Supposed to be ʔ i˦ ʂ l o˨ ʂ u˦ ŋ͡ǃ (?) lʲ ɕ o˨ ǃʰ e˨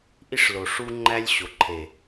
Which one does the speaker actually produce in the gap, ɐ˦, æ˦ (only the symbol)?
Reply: æ˦